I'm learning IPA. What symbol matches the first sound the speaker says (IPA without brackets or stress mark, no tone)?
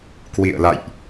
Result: k